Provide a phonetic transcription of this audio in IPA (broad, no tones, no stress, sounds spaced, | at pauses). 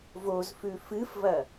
v o z f ʉ f ɨ f v ɐ